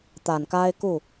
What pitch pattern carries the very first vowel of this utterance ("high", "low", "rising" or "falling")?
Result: low